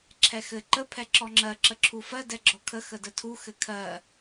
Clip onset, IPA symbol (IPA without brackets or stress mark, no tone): ǁʰ